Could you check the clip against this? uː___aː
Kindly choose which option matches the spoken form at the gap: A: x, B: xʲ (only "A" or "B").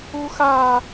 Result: A